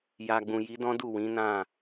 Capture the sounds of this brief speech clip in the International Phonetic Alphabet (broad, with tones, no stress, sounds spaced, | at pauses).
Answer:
j a˨ ɡ͡b ũ˨ j i˨˦ d ɔ̃˦ d u˦˨ w ĩ˨˦ n ã˦˨